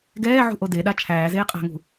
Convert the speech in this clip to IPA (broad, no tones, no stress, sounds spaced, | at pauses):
ɡ ɛː ʕ ṳ ʔ o d e ɗ a t͡ʃʰ æː z eː qʼ a̤ ŋ ṳ